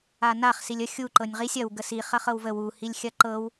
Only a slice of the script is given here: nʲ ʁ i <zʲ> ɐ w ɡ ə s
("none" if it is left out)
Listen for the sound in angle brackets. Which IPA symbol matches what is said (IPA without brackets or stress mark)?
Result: sʲ